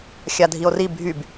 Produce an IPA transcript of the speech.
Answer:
xʲ a dʱ i o̯ r i bʱ y b

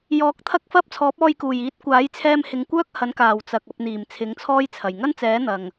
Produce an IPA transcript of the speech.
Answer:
j ɔː˨˥ k̚ t̪ʰ ɐ˥ k̚ f ɐ˥ p̚ t͡sʰ ɔː˨˥ p̚ ɔː˧ j k uː˨˩ j iː˨˥ t̚ kʷ aː˨˥ j t͡sʰ ɛː˧ m h ɪ˨˧ ŋ kʷ œː˥ k̚ h ɐ˨˥ n k aː˨˩ w t͡s ɐ˨ k̚ ɐ˧ p̚ n̪ iː˨˩ m t͡sʰ ɪ˨˥ ŋ t͡sʰ ɔː˥ j t͡sʰ ɐ˨˩ j ŋ ɐ˥ n t͡s ɛː˨˥ n̪ ɐ˨ ŋ

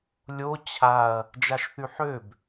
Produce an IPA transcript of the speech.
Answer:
lʲ o t͡ɕʰ a ɐ̯ | d͡ʒ a ʃ θ y ħ ø b

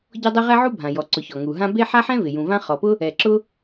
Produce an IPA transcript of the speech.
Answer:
ɟ ɔ˥ dˤ e˥ ʁ ɛ˥ ʕ u˥ bʱ ã˩ j ɔ˩ ǀ ʊ˩ ç ɔ˩ ŋ u˩ ɦ ã˥ b e˥ ħ a˥ ħ ɛ̃˥ v ɪ˩ j ũ˩ v ã˥ χ ɔ˩ p ʊ˥ | ɛ˩ ǁ ʊ˥

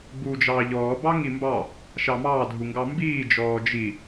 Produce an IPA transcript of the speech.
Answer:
ɡ͡b uː d͡ʒ ɑː ʎ ɔː b ɑ ŋ i m b ɑ | ʃ ɑ m ɑː dʱ u ŋ ɡ ɑ m b iː d͡ʒ ɔː d͡ʒ i

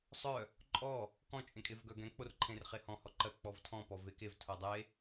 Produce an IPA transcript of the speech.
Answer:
sˤ œ | ǃʼ ɔ | k ɔ̃ t͡ʃʼ ẽ kʼ e v ɡ œ ɡ ɛ̃ k͡p o r ǃʰ ẽ r χ e h ɔ̃ h ɔ ǃ ɜ k͡p ɔ v tʰ ɔ̃ p ɔ v e k e v tʰ o dˤ e

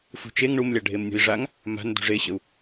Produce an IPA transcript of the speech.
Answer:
f ṳ t͡ʃ e ŋ ɳ u m lʲ a ɖʱ e m nʲ ṳ i̯ ʐ a ŋ | m a̤ n d ṳ ʐ e ɕ ə u̯

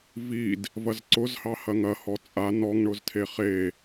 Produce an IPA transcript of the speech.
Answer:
v i d | v ɐ z ǀ ʊ z h ɑ h ɐ ŋ ɐ h ɔ t͡sʼ a n ɔ ŋ ɳ ʊ z tʰ e χ e

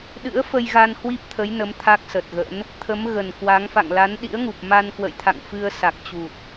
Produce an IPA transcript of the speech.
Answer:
ɗ ɨ̰˧˥ ə̯ f ə˧ j ɣ a˧ n h w i˦˥ p̚ t̪ʰ ə˨˦ j n ə˨˦ m t̪ʰ a˦˥ k̚ s ə˨˩ t̚ ɣ ə̰˧˥ n | t̪ʰ ə˨˦ m ɣ ə˨˩ n k w a˨˦ ŋ f a̰˧˨ ŋ l a˨˦ n ɗ ḭ˧˥ ə̯ ŋ u˨˩ p̚ m a˧ n k w ə̰˧˨ j t̪ʰ a̰˧˨ ŋ f ɨ˧ ə̯ s a˨˩ k̚ t͡ɕ u˨˩ t̚

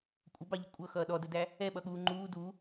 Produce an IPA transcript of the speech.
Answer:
kʷʼ ə b ɑ ʎ ɪ kʷʼ ʌ x ʌː ɗ ɔ d ə d æ | ɛ ɓ ʌ ɠ uː ŋ͡ǃ uː d u

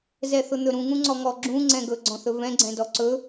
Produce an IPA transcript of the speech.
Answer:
z ɛ θ ʊ n̪ ɵ ɾ ũ ŋ ũ ŋ͡ǀ ɔ ŋ ɔ ɡ͡ǁ ũ ŋ͡ǀ ɛ̃ ɡ ɵ ɡ͡ǀ ɔ̃ θ ɵ v ɛ̃ ɡ͡ǀ ɛ̃ d ɔ ǀ ɵ

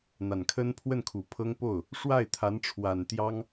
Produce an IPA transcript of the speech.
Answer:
n̪ a˨˩ n kʰ ə˥ n pʰ w ə˥˩ n kʰ u˨˩ pʰ ɤ˥ ŋ p o˥˩ ʊ̯ | ʂ w a˥˩ ɪ̯ t̪ʰ a˧˥ n ʈ͡ʂʰ w a˨˩ n t̪ j ɑ˥ ŋ

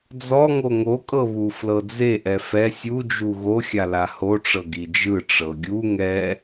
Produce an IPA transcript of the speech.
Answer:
d͡z ɔ ŋ o ŋ o kʼ ɤ β u f l ɤ d͡z e ʔ ɛ f ɛ sʲ u d͡ʒ u ɣ o xʲ a l a h o ʈ͡ʂ ɤ ɡ i d͡ʒ ɯ ʈ͡ʂ ɤ ɡʲ u ŋ ɛ

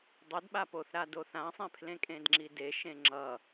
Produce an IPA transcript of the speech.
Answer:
dˤ ə d ɓ a p o θ ɾ a d o θ ã sˤ ẽ pʰ l ẽ kʼ ẽ d ŋ͡ǁ i d e ʃ ẽ ŋ͡ǁ ʌ

